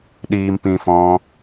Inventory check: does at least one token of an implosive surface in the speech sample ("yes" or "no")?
yes